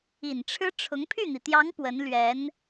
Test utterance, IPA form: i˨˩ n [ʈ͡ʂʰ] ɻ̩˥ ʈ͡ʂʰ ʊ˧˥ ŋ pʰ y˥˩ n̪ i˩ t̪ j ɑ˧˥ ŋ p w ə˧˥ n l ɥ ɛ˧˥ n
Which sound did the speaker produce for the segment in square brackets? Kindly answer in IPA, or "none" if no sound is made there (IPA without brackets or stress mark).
ʈ͡ʂʰ